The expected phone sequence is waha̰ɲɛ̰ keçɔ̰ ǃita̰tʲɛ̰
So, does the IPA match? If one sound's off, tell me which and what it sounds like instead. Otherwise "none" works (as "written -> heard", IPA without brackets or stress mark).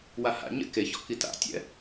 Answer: ǃ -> k